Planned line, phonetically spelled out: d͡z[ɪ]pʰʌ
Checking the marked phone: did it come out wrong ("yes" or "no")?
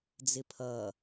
no